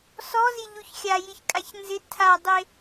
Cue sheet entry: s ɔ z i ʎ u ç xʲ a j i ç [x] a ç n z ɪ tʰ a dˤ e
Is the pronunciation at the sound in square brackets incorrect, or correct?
incorrect: kʼ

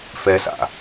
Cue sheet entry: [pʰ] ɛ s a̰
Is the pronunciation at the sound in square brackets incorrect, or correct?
incorrect: f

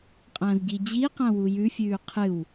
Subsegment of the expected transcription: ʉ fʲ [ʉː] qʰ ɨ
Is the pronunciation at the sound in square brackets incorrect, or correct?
correct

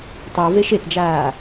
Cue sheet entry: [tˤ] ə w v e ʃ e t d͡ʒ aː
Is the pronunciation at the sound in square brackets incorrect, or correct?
correct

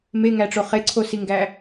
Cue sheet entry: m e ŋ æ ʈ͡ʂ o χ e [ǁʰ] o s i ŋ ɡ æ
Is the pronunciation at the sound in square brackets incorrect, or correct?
incorrect: ǀʰ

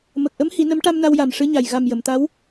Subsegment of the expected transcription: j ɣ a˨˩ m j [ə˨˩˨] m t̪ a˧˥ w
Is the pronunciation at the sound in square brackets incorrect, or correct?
correct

